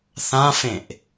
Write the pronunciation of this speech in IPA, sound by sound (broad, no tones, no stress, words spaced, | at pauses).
θãfẽʔ